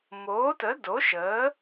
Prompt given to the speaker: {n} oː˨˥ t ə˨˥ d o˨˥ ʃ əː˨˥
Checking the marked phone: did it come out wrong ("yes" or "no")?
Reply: yes